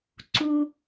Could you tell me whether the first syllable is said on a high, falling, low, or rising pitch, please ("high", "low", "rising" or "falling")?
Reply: high